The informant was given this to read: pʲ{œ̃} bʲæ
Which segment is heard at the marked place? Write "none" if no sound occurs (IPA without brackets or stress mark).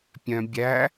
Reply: œ̃